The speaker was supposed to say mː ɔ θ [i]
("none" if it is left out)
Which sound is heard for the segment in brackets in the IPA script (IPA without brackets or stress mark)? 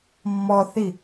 i